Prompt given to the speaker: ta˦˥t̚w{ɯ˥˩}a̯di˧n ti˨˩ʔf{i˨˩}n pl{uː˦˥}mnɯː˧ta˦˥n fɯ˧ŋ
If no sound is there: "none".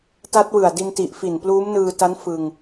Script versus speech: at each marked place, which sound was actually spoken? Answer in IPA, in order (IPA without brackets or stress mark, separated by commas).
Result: ɯ˨˩, i˨˩, uː˦˥